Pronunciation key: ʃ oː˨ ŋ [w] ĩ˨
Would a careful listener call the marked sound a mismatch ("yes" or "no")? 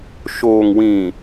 no